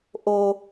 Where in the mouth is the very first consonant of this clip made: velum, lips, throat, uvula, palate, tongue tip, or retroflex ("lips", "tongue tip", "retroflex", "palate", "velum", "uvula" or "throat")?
throat